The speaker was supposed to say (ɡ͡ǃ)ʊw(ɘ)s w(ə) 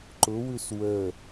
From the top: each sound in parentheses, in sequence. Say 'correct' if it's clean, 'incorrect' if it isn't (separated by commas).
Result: incorrect, incorrect, correct